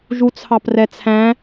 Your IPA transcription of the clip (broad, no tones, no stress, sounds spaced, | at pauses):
ʒ u t͡sʰ ɑ p r ɛ t͡sʰ æ̃